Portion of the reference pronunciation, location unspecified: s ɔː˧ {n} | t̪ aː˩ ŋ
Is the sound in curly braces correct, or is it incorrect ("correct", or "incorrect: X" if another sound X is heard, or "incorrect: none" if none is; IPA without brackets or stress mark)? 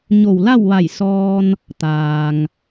correct